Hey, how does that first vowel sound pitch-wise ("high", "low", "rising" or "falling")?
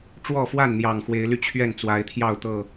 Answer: falling